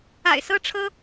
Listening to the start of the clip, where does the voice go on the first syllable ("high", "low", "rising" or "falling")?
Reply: low